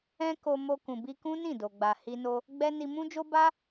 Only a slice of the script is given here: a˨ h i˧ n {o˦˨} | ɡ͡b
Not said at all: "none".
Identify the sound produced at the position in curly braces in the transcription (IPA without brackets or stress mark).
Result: o˧